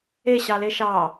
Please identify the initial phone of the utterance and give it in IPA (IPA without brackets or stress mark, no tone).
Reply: e